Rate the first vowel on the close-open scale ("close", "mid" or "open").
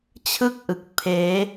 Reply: close